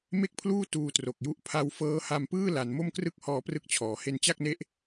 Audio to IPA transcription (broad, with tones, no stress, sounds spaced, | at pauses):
m e˥˩ k̚ pʰ l uː˥˩ t uː˧ t r o˨˩ k̚ j u˦˥ ʔ pʰ a˧ w f ɤː˦˥ h a˧ m p ɯː˥˩ l a˩˦ n m o˥˩ m k r ɯ˥˩ k̚ h ɔː˦˥ p r ɯ˦˥ k̚ t͡ɕʰ ɔː˩˦ h e˧ n t͡ɕ a˥˩ k̚ n e˦˥ ʔ